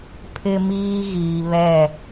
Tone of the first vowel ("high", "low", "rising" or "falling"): high